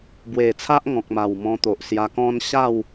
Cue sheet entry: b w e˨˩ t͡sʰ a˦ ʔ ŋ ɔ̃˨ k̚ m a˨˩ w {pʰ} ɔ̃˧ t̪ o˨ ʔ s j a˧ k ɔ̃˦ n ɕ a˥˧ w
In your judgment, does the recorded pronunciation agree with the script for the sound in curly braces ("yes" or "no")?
no